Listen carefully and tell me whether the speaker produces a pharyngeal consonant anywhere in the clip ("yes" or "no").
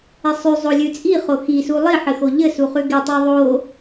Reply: yes